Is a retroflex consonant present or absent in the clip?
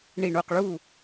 present